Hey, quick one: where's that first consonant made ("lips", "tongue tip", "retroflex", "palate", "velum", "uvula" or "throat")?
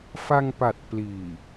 lips